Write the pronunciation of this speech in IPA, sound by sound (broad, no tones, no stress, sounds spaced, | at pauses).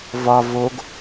v ɒ v o ɡ